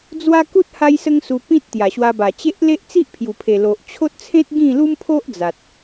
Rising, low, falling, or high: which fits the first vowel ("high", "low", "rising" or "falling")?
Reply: high